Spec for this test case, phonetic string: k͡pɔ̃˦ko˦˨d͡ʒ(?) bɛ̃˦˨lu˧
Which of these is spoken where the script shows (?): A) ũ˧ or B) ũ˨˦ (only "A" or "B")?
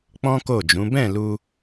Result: B